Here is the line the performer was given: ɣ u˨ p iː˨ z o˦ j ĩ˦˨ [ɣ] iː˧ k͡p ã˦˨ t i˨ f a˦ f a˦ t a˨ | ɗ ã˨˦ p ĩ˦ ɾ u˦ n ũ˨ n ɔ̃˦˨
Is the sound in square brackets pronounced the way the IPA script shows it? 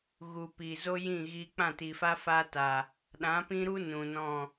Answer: yes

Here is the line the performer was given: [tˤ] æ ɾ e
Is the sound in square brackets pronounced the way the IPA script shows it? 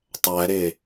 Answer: yes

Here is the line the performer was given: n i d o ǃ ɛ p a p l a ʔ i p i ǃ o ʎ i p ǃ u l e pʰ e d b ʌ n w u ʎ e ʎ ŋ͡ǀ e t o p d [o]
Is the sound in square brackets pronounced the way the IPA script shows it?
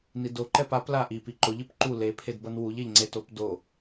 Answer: yes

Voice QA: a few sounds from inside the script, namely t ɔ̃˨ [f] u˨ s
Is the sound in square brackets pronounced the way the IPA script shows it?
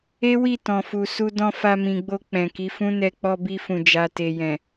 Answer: yes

